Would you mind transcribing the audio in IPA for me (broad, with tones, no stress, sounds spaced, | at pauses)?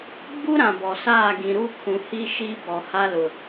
ɡ͡b u˦ ɾ ã˨ b ɔ˨ s aː˦˨ ɡ ĩ˨ ɾ u˦ kʰ ũ˨ h i˦ ʃ iː˦ b ɔ˨ h a˦ l ʊ˨